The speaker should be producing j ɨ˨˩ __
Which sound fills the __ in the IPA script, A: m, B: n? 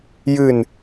B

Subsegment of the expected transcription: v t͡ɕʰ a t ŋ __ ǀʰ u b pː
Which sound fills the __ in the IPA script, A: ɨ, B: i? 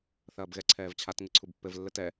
A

